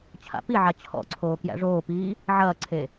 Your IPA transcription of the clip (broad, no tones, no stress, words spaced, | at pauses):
t͡ɕʰa̰piʕa t͡ɕʰɔ̰ǀʰoː kjæ̰ʐoːpiː | ʕɐːǀʰe